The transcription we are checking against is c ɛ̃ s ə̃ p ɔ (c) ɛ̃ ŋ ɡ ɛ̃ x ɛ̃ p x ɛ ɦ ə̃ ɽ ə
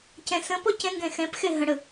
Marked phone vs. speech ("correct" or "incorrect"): correct